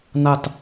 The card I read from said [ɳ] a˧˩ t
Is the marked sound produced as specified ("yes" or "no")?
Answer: no